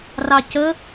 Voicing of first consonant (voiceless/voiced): voiced